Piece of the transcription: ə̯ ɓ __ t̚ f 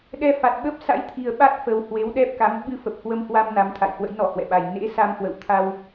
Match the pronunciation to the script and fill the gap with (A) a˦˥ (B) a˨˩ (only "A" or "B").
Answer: A